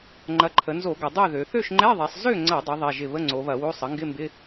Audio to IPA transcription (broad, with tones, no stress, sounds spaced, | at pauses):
ŋ͡ǃ ɐ˩˥ ǃʰ ə˩˧ n z o˧˩˧ ɡ ɐ˩˧ dˤ ø˥˨ ð ø˩˧ θ ø˥˨ ʃ ŋ͡ǃ ɛ˧˥˧ ðˤ ɛ˩˧ sˤ z ø˥˨ ŋ͡ǀ ɐ˧˩˧ dˤ ɪ˩˥ ðˤ ɛ˧˥˧ ʒ ɪ˥˨ β ə˧˥˧ ŋ͡ǀ o˩˧ β ɐ˧˩˧ w o˧˥˧ sˤ ə˩˥ ŋ ɡ ɪ˧˥˧ m b ɪ˧˥˧